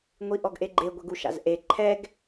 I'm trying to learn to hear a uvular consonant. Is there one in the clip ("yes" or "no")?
no